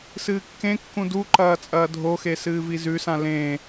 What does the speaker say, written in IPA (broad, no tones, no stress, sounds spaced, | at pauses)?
s ɨː kː ẽ kː ũ d u ǃ ɐː t͡sʼ ɐː dʱ o x e s ɨː v i z ʉ s ã l ẽ